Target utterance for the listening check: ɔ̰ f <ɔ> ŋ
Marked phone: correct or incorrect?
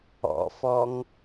correct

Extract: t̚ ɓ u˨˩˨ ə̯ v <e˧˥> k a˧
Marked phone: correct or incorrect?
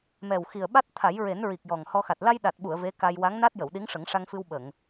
correct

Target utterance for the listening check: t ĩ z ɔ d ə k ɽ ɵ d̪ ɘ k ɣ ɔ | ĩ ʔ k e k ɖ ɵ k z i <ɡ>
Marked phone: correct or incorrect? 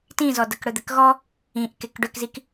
incorrect: k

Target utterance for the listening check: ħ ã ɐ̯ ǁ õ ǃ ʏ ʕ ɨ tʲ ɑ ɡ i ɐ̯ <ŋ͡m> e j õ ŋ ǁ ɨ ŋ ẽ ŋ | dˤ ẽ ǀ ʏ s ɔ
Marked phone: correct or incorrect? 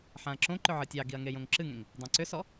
incorrect: ŋ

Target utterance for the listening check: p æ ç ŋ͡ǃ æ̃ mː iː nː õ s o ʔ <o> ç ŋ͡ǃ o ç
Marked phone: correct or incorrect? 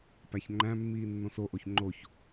correct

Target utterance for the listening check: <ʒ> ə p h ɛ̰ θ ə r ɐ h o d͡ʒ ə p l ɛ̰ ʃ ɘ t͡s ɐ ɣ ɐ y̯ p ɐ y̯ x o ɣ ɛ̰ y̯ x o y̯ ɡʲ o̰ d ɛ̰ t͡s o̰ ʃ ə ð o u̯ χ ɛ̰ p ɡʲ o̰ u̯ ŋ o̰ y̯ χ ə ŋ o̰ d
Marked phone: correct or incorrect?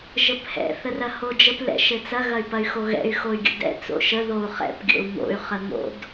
correct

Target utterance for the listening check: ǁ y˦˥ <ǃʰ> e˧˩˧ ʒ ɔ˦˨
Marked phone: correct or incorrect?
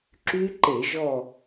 incorrect: ǃ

